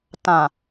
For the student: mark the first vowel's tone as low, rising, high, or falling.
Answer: low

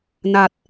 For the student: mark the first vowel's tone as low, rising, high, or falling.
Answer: low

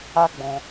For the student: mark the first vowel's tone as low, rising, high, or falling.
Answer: high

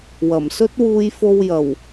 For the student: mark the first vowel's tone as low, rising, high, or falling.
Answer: low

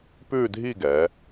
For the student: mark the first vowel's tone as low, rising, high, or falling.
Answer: falling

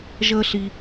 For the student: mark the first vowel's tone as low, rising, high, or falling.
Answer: high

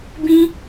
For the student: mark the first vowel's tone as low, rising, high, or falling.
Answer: high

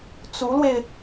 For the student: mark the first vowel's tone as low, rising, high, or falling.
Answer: rising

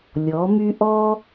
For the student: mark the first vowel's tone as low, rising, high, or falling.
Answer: rising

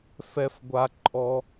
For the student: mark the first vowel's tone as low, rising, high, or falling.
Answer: high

